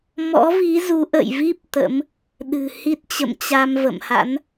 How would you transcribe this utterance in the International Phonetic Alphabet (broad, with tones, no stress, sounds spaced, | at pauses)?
m ɔ̰˧˥ v i˨˦ z u˨˦ ʔ ə̰˧˨ j v i˦˥ p̚ t̪ ə̰˧˥ m | ɗ ɨ̤˨˩ h i˦˥ t̚ t͡ɕ ə̰˧˨ m t͡ɕ a˧ m v ə̰˧˨ m h a̰˧˥ n